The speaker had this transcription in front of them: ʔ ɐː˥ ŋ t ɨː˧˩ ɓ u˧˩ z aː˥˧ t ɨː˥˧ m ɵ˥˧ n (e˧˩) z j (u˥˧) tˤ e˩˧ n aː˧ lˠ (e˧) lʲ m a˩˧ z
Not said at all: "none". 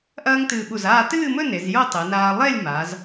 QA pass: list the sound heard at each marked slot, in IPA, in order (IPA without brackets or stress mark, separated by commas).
e˩˧, o˥˧, e˥˧